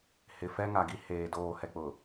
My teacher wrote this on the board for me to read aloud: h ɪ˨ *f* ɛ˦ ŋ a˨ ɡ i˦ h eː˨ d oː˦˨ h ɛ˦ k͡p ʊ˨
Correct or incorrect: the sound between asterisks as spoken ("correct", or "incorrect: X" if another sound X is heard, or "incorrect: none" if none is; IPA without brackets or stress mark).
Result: correct